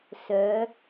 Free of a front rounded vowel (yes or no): no